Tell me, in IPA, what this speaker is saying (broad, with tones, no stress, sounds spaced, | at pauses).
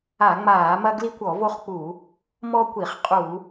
a˧˩˧ ŋ͡m aː˧˩˧ m ɐ˦ ɡ l i˦ kʷ ɔ˧˩˧ v o˦ χ k͡p u˧˩˧ | m ɔ˦ kʷ i˧˩˧ χ qʼ u˧˩˧